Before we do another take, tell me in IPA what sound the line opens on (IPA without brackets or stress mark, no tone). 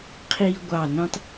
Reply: qʰ